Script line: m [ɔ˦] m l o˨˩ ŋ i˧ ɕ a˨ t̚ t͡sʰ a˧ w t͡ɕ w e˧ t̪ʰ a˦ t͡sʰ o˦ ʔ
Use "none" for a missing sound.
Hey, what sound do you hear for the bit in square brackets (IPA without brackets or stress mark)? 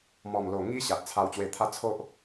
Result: ɔ˨˩